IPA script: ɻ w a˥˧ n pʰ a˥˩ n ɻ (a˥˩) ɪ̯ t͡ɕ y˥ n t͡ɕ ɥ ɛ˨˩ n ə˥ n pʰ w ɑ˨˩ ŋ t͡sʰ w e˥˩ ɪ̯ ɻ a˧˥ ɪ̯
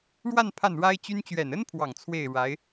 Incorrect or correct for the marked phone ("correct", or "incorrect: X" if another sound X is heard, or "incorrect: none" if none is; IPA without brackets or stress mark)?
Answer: incorrect: a˥